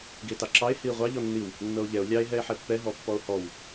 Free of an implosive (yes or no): yes